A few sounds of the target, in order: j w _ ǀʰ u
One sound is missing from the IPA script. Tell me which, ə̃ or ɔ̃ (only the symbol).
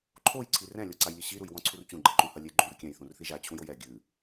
ɔ̃